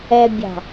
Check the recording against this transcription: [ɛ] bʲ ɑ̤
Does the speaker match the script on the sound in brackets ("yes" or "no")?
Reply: yes